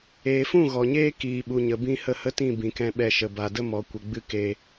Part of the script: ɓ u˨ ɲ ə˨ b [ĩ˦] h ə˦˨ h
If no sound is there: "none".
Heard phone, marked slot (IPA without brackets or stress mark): ĩ˧